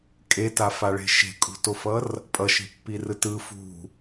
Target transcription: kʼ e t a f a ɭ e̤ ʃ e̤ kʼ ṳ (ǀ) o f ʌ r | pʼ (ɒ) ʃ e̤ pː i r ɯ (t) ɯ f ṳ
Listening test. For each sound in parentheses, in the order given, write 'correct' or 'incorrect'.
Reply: incorrect, incorrect, correct

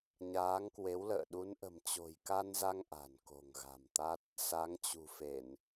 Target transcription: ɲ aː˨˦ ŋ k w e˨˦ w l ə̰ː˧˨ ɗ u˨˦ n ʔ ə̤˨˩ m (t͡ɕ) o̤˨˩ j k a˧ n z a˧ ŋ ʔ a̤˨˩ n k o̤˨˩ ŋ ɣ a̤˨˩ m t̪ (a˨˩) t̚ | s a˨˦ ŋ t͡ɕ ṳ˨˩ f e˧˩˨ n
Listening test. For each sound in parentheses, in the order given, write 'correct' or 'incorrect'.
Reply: correct, incorrect

